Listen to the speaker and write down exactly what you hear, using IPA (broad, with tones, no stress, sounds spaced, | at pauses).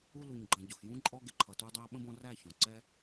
u˦ l u˨ ɲ ɡ͡ǃ ə̃˨ ɟ ʊ˨ x j ũ˦ ǃʼ ɔ˧ ɡ ɪ˨ ǃʰ ʌ˨ t u˧ dˤ æ˧ ɓ ə̃˦ b ɔ̃˧ r æ˦˨ ç ɔ̃˨ ǀ ɛ˦